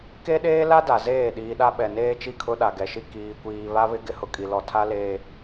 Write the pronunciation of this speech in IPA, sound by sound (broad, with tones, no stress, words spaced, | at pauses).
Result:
ke˦ɗeː˦la˦da˨ zeː˦˨ ɗiː˨ɗa˦ ɓɛ˨neː˦t͡ʃi˦˨kʰʊ˦ ɗa˨ɡɛ˨ʃi˦ kiː˨kʷiː˨ βa˦βɪ˦ ɡɪ˦hʊ˨kʼi˨lɔ˨ tʰa˦leː˨